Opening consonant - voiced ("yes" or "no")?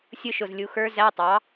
no